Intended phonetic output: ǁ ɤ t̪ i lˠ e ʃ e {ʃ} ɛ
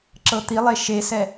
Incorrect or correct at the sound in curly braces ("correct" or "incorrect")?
incorrect